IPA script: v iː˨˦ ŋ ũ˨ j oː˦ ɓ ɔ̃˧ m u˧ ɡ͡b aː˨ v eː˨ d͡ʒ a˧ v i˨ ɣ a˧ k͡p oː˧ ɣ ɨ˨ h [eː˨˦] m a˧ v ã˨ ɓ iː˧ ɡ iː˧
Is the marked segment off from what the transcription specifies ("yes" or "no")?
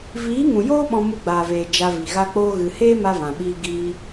yes